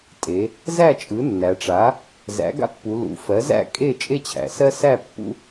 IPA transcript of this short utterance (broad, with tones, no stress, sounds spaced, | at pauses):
tʼ e˩˧ | z æ˥˨ t͡ʃʼ ɯ˩˥ nː æ˩˧ ʈ͡ʂ a˩˥ | z æ̰˩˥ ɡ a̰˦ pː u˩˧ l ṵ˩˧ f ɜ˩˥ z æ̰˥˨ kʼ e˥˨ t͡ʃʼ e˦ t͡ɕʰ æ̰˩˧ s ɜ˦ s æ˥˨ pː ṵ˦